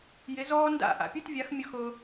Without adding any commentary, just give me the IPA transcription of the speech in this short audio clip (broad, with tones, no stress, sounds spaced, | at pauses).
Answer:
j ɪ˨˦ z ɔː˦ n d a̰˦˨ ʔ a̰˨ pʲ u˦˨ t vʲ a˨˦ x mʲ ʊ˧ x ʊː˧